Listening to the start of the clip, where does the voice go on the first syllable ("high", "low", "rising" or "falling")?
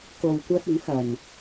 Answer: low